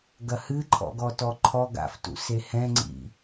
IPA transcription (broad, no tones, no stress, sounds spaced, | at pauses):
ɡ ɐ h ɨ ǃʰ ɔ̰ ɡ ɔ t ɔ ǃʰ ɔ ɡ a̰ f t ṵ s e h ɛ̃ ŋ͡ǀ ḭ